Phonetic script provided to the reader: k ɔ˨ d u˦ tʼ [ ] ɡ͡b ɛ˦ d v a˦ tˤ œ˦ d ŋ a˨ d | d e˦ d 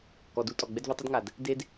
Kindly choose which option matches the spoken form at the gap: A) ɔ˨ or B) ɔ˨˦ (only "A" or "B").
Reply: A